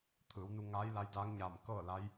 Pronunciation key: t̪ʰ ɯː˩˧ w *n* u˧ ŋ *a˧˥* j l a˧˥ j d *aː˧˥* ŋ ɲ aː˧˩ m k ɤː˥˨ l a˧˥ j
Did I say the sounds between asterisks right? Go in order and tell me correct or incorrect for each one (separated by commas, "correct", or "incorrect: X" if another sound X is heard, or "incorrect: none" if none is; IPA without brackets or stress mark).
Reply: correct, incorrect: aː˧˥, correct